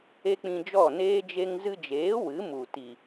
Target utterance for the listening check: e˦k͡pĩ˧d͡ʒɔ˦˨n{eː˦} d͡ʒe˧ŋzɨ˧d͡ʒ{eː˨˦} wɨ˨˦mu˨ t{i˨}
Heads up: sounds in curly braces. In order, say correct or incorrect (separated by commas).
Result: correct, correct, correct